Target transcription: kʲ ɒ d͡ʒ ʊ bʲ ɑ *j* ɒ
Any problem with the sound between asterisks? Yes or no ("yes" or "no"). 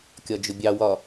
yes